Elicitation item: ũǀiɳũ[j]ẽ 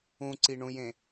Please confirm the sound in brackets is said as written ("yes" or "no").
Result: yes